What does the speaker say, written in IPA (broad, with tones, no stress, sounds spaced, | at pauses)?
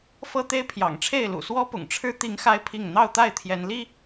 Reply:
f ɤ˦ t̪ e˦ ɪ̯ pʰ j ɑ̰˨˩ ŋ ʈ͡ʂʰ e˥˨ ɪ̯ l ṵ˨˩ s w ɔ˦ p ʊ̰˨˩ ŋ ʈ͡ʂʰ ɻ̩˦ t̪ i˨˦ ŋ x a˦ ɪ̯ pʰ i˥˨ ŋ n̪ ɑ˥˨ ʊ̯ t̪ a˥˨ ɪ̯ t̪ʰ j ɛ˨˦ n l i˦